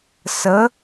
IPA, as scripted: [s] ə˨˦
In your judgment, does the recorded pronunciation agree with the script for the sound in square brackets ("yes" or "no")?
yes